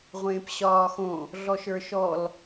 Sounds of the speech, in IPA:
ʁʷ ẽː p ɕ ɒː x õ | ɮ ɔ ʃ ə˞ ʃ ɔ l

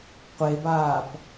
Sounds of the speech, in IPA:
qʷ e b aː p

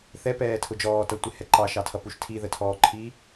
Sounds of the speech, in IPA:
θ ɛ p ɛː tʰ ʊ d͡ʒ ɔː t ʌ tʷ ɪ h ɛ ǃ ɑ ʃ ɑ tʰ ʌ p u ʃ tʰ i ð ə tʰ ɔː ǃʰ i

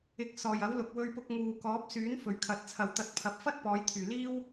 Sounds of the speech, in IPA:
ɪ˧ k̚ s ɔː˨ j ɐ˨˥ w l ʊ˨ k̚ w ɵ˧ ɥ p ʊ˧ k̚ ŋ uː˨ k ɔː˨˥ p̚ s yː˨˥ n f ɵ˨ ɥ kʰ ɐ˨˥ t̚ t͡sʰ ɐ˨ w t̪ ɐ˨˥ t̚ pʰ ɐ˨ p̚ f ɐ˥ t̚ p ɔː˨˧ j t̪ʰ yː˨ l iː˥ w

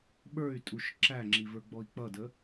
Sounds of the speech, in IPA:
ɓ ə˞ y̯ tʼ u ʃ ǁ æ ŋ͡ǁ i v ə˞ ɡ͡b ɔ i̯ k͡p ʌ d ə

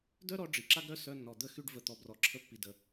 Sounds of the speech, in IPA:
d œ˦ ɾ ɔ˧ ɖ͡ʐ i˨ ǁ a˦ ɡ ɾ œ˦ s œ˧ nː ɔ˨ d̪ ə˦˨ x y˧ ɖ v ə˨ t̪ ɔ˨ b r ɔ˨ ǁʰ ə˧ pː i˨ d ə˨

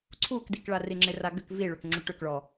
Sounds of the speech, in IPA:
ǀʰ u k d i k ɭ a r i ŋ͡ǁ ɪ r a ɡ ʏ k v i ɭ ʏ k ŋ͡ǁ ʉ ʈ ʏ k ɭ ɔ

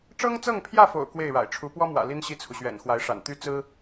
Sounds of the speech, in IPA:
ʈ͡ʂ ɤ˥ ŋ t͡s ɤ˥˧ ŋ pʰ j ä˥˩ f o̰˨˩ ʊ̯ k w e˥˩ ɪ̯ ɻ a̰˨˩ ɪ̯ ʈ͡ʂʰ u˧˥ p w ɔ˥ m w ä̰˨˩ l i˥ n ɕ i˥˩ t͡sʰ u˩ ɕ ɥ ɛ̰˨˩ n x w a˧˥ ɪ̯ ʂ a̰˨˩ n t̪ y˥ t͡s ɹ̩˥

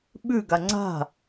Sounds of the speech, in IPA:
ɓ ʉ ɡ a ŋ͡ǀ a̤

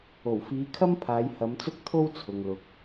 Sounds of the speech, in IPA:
o˨˩ w f iː˨˧ kʰ ɐ˥ m pʰ aː˨˧ j h ɐ˨˧ m t͡s ʊ˥ k̚ t̪ʰ o˥ w t͡sʰ ʊ˨ ŋ l ʊ˨ k̚

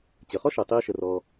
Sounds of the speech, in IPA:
t͡ɕ ə˩ χ ɔ˥ ʃ ɛ˩ tˤ iː˧ ʃ ə˩ r ɔː˩

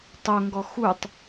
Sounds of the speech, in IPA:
tˤ o ŋ ɡ ɔ x u tˤ

